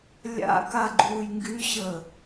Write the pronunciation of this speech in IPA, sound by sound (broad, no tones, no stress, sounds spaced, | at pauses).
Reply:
lʲ a̰ k a ɡ͡ǃ uː j ŋ ɡ y ɕ əː